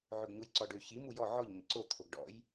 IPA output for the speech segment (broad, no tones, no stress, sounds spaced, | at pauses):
ʕ ɵ ɡ ɲ u j ǀ ɔ ɖ ø ç i m u j ɔ ʕ ɔ ʎ ɲ ə̰ ǀ o t̪ʰ o ɡ ɖ ɔ̰ j